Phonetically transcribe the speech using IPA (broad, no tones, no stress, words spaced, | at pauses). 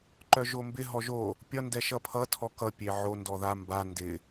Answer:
ǃœʒombɪ ɦɔʒo | pʲʌ ndɛʃʌpʰʌ tʰɔkʌ pʲeʕo ndɔða mba ndɪ